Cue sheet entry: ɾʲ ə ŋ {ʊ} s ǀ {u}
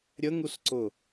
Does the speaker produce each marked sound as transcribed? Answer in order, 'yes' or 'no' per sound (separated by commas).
no, no